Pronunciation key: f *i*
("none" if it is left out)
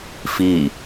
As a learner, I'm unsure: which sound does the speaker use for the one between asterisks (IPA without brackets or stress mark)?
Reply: i